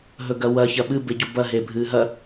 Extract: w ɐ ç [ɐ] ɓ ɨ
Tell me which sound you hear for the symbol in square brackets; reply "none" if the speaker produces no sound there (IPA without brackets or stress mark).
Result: ɐ